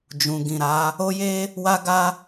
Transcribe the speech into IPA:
d͡ʒ ũ˨ ɡ ĩ˨ ɾ a˨˦ | o˦ j e˦ | w a˦ ɡ a˦

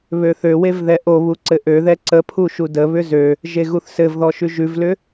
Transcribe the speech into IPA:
β ø θ ø w e v ð ɛ ʔ o β u ǀ ɘ ʔ ø ð ɛ ǀ ə pʰ u ʃ u d ə β ʏ z ø | ʒ e ɣ u θ s ɘ v ð ɔ ʃ ʉ ʒ ʉ v l ʏ

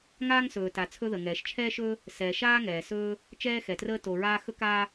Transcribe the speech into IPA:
ŋ aː˥ ŋ s ɵː˩ t a˩ t͡sʰ ɵ˥ ð ə˩ ŋ ɛː˩ ʃ t͡ʃʰ ɛː˥ ʃ ɵː˥ | s ɛ˩ ʃ aː˥ ŋ ɛː˩ s ɵː˥ | t͡ʃ ɛː˥ x ɛ˩ t r əː˥ t o˩ ɹ aː˥ x ɵ˥ k aː˥

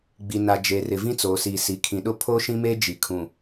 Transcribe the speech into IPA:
ɡ͡b i˨ n a˨ d͡ʒ eː˨ r ɪ˨ v ĩ˦ t͡s oː˨ s iː˨ s i˨ kʰ ĩ˨ ɗ ʊ˦ pʰ oː˦ ʃ ĩ˦ m eː˦ d͡ʒ i˨ kʰ ũ˨

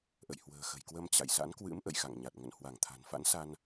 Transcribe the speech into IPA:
ʔ ə̰˧˨ j h w ə̤ː˨˩ x ə̤˨˩ j k w ə˧ m t͡ɕ a̰˧˨ j s a̰˧˥ n k w ɨ̰˧˥ m ʔ ə̰˧˨ j x a̰˧˨ ŋ ɲ a˨˩ t̚ ŋ ə̰˧˨ n h w a˧˩ ŋ t̪ʰ a̤˨˩ n f a̰˧˥ n s a˧ n

